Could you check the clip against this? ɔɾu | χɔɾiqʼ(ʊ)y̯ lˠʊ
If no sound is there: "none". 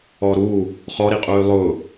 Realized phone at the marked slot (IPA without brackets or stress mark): u